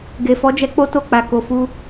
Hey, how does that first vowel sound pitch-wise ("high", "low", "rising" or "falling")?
low